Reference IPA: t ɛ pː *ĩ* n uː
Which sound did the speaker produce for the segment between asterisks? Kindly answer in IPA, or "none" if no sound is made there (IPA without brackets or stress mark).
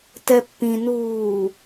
ĩ